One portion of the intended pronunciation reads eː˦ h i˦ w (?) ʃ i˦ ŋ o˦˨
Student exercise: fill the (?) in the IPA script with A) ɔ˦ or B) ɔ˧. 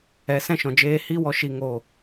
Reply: B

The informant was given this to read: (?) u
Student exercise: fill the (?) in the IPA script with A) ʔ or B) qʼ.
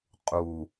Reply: B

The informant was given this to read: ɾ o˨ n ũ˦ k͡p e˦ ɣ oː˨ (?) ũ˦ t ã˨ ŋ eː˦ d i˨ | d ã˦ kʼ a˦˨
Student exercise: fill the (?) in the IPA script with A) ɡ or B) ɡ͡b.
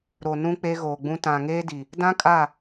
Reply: B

